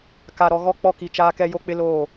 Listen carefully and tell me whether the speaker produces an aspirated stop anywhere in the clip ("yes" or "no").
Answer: no